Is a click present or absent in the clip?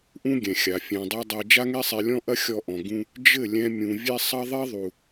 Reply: absent